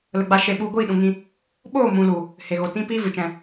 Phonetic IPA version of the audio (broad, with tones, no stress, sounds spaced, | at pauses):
l ə˧ ɡ͡b a˦ ʃ e˦˨ ɓ u˧ ɡʷ iː˦˨ ɗ ũ˨ ŋ ĩ˧ | ɓ oː˦˨ m ũ˨ l u˨ | h e˨ ɣ o˨ t ĩ˦ p iː˦ v ɨ˨ t͡ʃ ɛ̃˧